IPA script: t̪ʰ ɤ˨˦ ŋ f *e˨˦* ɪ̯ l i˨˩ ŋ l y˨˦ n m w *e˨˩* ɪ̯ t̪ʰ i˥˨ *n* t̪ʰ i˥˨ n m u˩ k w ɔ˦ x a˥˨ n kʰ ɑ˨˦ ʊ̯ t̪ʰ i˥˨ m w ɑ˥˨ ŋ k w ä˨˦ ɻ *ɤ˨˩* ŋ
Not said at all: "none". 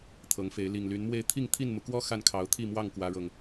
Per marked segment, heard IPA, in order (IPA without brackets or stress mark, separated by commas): e˨˦, e˥˨, ŋ, ɤ˨˩